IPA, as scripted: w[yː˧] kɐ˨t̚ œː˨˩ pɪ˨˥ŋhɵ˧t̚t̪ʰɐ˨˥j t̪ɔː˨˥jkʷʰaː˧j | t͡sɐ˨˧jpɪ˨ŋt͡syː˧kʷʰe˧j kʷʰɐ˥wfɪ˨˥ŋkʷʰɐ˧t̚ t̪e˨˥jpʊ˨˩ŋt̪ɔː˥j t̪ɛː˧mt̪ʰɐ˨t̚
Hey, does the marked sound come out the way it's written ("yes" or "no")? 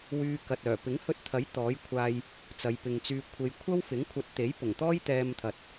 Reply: yes